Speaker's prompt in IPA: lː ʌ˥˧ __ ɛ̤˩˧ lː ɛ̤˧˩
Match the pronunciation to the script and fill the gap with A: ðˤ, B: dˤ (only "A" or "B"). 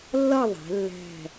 A